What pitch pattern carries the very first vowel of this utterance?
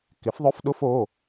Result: rising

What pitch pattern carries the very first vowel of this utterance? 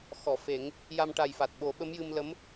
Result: low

